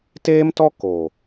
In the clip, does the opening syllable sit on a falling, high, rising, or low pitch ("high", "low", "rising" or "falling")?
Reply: high